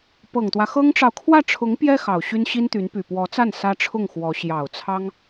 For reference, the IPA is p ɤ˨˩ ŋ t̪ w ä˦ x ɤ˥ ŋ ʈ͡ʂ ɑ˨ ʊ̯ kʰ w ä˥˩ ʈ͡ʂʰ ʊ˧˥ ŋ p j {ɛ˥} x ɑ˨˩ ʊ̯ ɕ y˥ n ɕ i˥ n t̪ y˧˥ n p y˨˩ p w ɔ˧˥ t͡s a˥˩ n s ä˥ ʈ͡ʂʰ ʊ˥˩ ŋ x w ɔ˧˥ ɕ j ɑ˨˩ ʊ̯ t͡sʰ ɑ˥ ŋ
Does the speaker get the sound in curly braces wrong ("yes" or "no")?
no